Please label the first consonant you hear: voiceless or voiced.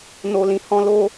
voiced